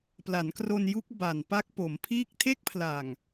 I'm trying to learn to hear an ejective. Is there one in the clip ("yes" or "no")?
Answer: no